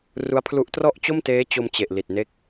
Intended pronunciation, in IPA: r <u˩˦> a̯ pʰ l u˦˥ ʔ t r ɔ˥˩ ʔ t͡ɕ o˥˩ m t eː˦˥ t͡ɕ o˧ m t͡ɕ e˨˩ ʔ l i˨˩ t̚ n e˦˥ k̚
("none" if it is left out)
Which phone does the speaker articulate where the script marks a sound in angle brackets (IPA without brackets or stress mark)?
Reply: u˦˥